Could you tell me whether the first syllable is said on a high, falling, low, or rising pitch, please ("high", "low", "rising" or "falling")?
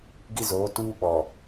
high